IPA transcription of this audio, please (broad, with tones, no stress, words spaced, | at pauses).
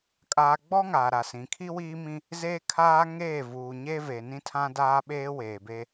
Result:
kʼaː˨ɡ͡bɔ˦ ŋa˨ɾa˨sĩ˨ kʰi˦wiː˦mĩ˦ | zeː˦kʰaː˦ ŋeː˦˨vuː˨ɲe˦ve˨ nĩ˦tʰã˦daː˦ɓeː˦ weː˨be˦